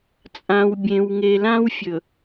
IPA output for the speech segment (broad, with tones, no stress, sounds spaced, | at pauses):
t͡sʼ ã˨ w bʲ ẽ˨ w ŋ e˨ l ã˦ w fʲ ɵ˨